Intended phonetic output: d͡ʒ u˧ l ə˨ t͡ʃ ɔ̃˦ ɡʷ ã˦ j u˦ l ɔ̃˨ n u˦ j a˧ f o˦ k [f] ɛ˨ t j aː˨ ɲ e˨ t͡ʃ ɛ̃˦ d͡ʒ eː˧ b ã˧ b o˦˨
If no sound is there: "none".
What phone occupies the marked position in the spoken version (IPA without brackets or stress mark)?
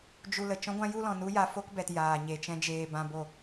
b